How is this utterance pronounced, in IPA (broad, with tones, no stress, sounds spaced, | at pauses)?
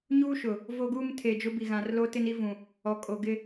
ɲ uː˦ ʃ ʊ˨ | v o˦ ɡ uː˦ m tʰ eː˨ d͡ʒ ʊ˦ b i˨ ɣ ã˨ r l o˦ t ɪ˦ n i˦ v ũ˨ | ɔ˨ kʼ o˨ ɡ ɪ˦